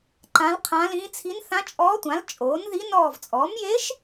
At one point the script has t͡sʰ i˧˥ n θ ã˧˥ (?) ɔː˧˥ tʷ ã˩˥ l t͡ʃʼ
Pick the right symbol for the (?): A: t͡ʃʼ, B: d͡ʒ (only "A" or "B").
A